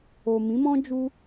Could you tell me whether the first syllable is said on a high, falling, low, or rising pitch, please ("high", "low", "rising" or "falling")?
low